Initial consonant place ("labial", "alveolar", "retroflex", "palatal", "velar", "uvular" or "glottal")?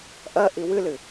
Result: glottal